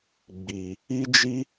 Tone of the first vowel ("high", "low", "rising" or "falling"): low